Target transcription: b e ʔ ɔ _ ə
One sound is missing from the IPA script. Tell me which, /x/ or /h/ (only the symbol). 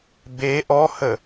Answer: h